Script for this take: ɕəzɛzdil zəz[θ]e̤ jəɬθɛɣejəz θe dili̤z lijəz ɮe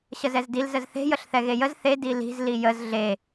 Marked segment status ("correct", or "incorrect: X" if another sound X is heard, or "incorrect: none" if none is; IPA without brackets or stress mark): correct